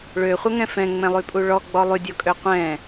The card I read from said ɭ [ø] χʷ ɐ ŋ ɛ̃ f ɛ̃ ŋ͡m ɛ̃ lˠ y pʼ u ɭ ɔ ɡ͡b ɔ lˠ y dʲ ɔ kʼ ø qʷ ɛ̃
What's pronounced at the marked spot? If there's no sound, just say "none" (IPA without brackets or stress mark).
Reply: ø